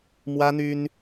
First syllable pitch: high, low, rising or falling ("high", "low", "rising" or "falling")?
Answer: high